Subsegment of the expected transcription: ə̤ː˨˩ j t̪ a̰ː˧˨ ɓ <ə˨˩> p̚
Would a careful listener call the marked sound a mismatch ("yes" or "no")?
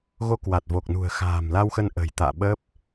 yes